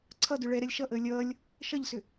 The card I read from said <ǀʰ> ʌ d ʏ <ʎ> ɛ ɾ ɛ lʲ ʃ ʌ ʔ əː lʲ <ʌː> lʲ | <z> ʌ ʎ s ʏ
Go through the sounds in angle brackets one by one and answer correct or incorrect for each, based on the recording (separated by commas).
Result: correct, incorrect, correct, incorrect